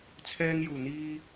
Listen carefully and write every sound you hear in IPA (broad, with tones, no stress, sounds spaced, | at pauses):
t͡sʰ ɛː˧ ŋ j uː˨˩ n̪ iː˧